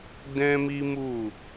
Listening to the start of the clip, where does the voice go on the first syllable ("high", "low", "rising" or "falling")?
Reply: high